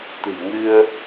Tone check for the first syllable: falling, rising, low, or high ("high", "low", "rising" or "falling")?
low